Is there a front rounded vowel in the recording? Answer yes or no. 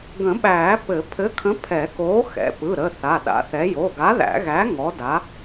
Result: no